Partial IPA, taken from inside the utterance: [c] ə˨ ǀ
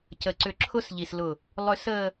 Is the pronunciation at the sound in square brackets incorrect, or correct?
correct